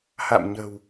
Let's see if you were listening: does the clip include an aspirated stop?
no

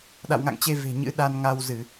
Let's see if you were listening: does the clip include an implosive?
yes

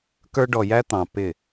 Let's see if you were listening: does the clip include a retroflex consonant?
yes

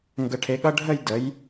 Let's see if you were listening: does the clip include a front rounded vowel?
no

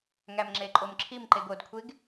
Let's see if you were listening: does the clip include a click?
yes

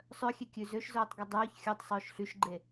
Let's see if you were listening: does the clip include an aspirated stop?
no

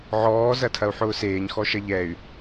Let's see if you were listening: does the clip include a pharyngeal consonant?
yes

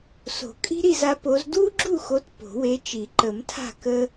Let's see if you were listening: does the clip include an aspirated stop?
yes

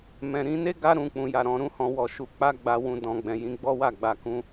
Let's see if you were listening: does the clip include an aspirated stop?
no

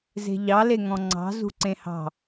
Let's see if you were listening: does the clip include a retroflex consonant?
no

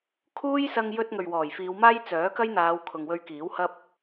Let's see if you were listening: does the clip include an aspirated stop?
yes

